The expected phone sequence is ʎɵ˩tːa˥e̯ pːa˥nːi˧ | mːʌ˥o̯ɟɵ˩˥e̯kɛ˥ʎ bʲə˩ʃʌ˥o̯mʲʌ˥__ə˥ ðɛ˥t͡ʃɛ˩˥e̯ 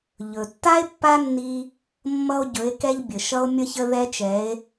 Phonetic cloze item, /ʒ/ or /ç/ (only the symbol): ç